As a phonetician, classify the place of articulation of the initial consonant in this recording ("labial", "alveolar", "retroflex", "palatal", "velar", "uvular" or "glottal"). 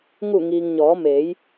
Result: velar